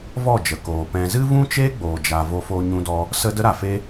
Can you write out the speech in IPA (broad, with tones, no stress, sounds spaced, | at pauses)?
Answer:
v ɔ˦˨ d͡ʒ ə˨ k oː˨ p ɛ̃˧ z ɨ˦ v ũ˦ t͡ʃ eː˦ ɡ͡b oː˨ d͡ʒ a˨ v o˧ f oː˧ ɲ ũ˧ d ɔ˧ | s ə˦ d ə˦ ɾ a˨ f e˧